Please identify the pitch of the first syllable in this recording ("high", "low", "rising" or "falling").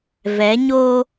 rising